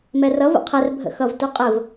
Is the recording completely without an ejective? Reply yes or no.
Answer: no